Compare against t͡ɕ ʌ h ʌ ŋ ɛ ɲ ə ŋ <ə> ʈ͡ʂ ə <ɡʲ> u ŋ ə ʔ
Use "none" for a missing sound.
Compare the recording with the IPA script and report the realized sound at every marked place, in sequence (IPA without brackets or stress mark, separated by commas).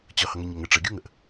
ə, ɡʲ